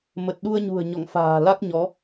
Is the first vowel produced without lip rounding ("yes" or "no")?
yes